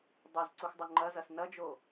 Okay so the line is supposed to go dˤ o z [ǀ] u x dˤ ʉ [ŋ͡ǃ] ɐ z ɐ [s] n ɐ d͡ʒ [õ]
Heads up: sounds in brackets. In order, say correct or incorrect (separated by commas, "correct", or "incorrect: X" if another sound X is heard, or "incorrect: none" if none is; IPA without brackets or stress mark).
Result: correct, correct, correct, incorrect: o